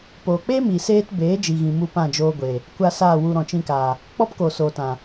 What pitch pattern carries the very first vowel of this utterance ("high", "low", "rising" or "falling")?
low